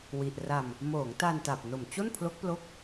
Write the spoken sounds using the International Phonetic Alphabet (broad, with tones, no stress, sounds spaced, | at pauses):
w i˨˩ ʔ r a˧ m | m oː˩˦ ŋ t a˧ n t a˨˩ p̚ n o˨˩ m t͡ɕ o˥˩ n pʰ l o˦˥ k̚ p l o˦˥ k̚